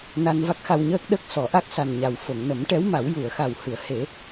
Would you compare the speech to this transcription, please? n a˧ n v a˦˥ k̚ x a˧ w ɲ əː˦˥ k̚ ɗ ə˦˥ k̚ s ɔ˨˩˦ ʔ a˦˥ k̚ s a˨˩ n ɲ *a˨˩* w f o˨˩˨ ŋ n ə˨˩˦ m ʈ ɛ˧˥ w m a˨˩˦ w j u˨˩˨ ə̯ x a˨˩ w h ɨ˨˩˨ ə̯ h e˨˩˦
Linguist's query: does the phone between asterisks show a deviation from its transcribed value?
no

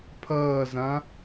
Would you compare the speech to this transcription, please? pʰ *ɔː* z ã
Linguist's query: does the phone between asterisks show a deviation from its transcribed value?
yes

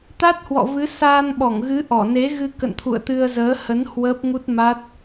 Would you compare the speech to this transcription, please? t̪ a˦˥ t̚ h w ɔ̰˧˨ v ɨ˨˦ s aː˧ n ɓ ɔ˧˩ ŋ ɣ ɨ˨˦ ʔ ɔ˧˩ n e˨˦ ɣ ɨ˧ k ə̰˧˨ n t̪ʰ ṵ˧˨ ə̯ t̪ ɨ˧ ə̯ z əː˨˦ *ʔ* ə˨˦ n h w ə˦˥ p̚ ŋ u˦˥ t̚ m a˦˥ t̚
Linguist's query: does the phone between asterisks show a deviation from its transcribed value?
yes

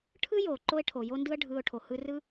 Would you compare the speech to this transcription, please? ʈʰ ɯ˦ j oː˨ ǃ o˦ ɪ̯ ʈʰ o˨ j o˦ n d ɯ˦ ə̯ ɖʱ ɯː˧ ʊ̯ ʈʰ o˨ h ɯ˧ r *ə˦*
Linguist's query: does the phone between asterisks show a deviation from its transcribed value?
yes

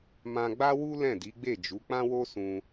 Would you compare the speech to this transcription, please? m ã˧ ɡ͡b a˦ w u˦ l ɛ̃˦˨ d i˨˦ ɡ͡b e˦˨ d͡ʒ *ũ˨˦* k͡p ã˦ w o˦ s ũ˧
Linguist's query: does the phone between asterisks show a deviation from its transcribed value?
yes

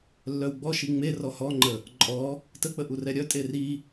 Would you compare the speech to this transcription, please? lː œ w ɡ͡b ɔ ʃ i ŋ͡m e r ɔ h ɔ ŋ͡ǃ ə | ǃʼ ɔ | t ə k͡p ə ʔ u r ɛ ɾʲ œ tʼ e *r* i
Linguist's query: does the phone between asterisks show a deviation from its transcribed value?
no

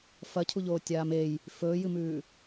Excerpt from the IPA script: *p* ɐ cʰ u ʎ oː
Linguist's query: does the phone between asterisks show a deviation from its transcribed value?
yes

